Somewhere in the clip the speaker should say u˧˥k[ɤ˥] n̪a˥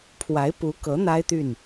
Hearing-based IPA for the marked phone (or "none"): ɤ˧˥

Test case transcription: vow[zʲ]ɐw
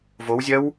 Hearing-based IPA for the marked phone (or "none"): zʲ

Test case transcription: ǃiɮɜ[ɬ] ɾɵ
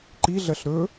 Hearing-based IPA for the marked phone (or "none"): ɬ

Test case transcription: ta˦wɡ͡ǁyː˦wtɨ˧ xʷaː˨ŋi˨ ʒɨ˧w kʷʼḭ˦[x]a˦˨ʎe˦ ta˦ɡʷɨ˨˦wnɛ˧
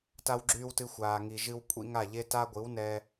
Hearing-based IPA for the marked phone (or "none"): ŋ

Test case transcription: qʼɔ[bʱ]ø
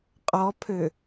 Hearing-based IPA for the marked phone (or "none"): pʰ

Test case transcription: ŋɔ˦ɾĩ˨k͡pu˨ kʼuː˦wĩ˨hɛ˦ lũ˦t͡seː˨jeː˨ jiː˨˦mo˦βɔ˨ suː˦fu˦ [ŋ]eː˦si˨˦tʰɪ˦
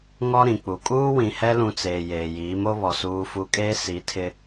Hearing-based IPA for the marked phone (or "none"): kʼ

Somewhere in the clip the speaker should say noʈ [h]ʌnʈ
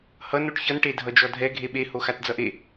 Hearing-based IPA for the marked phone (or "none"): ç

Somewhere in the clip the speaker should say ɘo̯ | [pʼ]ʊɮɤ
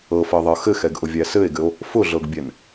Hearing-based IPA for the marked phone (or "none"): f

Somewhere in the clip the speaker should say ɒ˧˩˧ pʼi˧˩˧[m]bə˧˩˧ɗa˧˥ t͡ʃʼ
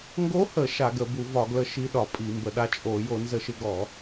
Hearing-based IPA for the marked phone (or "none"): m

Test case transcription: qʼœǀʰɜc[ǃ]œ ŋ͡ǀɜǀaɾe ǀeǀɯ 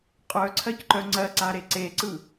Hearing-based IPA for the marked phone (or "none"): ǃ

